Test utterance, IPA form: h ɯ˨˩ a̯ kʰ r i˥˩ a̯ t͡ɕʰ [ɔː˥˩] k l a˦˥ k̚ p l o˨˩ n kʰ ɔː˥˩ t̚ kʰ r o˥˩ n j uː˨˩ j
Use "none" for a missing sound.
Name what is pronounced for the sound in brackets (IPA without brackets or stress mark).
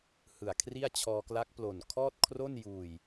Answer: ɔː˧